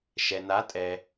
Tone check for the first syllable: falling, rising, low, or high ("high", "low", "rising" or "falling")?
low